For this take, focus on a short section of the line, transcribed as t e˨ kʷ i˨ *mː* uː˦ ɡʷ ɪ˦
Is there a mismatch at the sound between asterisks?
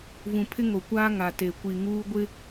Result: yes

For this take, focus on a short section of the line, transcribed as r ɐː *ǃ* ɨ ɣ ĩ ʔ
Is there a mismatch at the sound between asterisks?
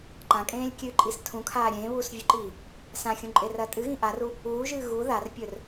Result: yes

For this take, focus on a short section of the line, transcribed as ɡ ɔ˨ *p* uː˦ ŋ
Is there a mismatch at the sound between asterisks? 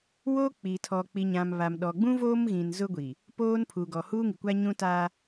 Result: yes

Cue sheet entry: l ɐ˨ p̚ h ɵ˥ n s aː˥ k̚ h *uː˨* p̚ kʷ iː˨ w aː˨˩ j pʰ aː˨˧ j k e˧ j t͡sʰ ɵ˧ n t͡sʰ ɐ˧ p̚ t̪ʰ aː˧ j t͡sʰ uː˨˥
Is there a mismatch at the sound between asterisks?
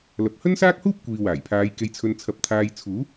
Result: yes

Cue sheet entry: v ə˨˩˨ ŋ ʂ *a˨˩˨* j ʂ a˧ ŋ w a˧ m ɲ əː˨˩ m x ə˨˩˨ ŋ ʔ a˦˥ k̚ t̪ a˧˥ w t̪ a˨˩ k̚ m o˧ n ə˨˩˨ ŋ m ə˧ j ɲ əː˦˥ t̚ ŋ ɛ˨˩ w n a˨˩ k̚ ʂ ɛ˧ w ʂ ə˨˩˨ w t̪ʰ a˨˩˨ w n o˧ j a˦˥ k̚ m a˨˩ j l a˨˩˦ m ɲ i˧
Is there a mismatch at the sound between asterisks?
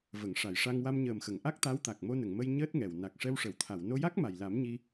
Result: no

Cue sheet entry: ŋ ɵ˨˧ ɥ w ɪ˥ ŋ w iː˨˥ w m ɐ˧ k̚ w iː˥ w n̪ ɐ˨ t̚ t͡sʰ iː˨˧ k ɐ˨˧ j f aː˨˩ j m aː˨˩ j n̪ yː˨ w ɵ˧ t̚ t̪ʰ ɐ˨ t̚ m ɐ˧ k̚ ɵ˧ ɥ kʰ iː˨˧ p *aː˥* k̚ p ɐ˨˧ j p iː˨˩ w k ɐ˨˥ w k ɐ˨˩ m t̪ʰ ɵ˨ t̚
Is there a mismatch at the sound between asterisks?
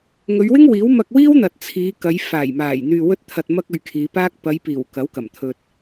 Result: no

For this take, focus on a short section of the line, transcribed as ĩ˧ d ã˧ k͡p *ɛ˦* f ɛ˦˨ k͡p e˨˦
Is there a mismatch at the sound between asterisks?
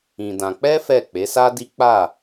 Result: no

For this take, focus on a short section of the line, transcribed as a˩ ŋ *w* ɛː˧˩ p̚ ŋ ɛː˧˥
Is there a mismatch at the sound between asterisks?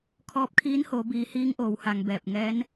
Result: yes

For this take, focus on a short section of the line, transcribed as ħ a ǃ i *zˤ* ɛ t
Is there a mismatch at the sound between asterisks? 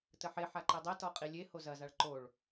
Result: yes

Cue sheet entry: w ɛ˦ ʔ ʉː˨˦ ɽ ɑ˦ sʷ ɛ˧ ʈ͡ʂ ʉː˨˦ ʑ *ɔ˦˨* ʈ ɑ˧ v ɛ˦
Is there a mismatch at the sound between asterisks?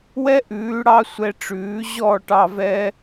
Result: no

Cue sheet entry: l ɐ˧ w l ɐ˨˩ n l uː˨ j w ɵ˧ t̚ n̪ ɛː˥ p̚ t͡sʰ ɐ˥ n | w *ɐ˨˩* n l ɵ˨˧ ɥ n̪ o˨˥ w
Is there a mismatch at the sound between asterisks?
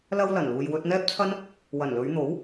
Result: no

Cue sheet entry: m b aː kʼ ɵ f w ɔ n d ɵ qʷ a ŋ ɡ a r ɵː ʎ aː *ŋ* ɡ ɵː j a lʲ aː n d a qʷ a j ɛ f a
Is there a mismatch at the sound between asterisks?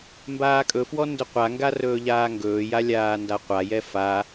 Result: no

